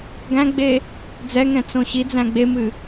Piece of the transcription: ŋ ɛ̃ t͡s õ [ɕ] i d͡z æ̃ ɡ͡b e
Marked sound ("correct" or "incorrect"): correct